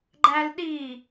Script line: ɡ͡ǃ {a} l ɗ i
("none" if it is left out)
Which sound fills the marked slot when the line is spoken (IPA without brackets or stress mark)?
æ